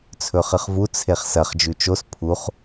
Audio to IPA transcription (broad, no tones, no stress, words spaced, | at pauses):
t͡sʰɵχɨχvu t͡sʰeχsɐχ d͡ʒʉt͡ʃos pʰuχ